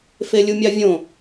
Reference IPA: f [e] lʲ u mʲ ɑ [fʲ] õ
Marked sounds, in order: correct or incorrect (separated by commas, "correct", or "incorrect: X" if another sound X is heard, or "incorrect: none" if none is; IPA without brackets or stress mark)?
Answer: correct, incorrect: vʲ